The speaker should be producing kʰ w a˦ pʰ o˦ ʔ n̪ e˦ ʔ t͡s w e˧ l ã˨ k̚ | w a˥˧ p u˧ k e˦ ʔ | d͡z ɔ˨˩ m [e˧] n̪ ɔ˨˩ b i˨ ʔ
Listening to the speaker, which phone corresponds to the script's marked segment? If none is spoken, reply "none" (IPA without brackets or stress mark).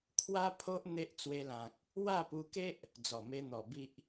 e˧